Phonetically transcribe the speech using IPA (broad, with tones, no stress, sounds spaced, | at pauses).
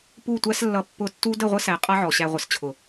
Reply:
p u˦˨ tʷ æ˦ s lː ʌ˧ pː ʊ˧ tː u˦ d ə˦˨ ʁʷ ə˦ s æ˨ qʼ ʌ˦ ʕ ɔ˨ ɕ æ˧ ʁʷ ə˨ s t͡ɕʰ ʊ˨